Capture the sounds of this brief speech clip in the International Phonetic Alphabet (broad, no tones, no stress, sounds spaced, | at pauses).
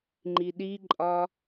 ŋ͡ǃ i ɗ i ǃʼ ɒ